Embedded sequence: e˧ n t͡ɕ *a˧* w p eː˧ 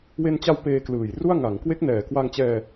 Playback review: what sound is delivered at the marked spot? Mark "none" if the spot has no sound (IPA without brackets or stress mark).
a˧